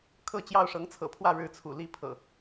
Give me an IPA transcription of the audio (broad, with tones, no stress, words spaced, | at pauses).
kʰɤ˥˨t͡ɕjɑ˥˨ʊ̯ ʂɤ˨˦ŋt͡sʰɤ̰˨˩pʰwä˥˨ ɻɻ̩˥˨t͡sʰṵ˨˩ li˦pʰɤ̰˨˩